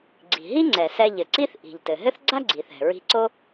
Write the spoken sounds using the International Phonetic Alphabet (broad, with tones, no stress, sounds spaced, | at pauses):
ɡ͡ǀ i̤˩ ɦ i˥ ŋ͡ǀ ɛ˩ s ɛ˧ ʎ ɘ˩ ǀ i˥ θ ʔ i̤˩ ʎ t ɘ˩ ɦ ɘ˥ θ ɡ͡ǀ a˥ ɡ͡ǀ i˩ θ ɛ̤˩ ɹ i̤˧ ǀ o˥